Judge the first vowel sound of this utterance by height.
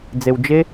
mid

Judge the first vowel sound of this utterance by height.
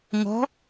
mid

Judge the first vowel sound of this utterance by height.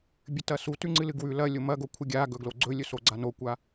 high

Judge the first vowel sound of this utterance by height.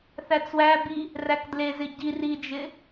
low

